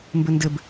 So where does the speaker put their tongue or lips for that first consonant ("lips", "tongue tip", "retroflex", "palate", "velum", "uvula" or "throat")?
lips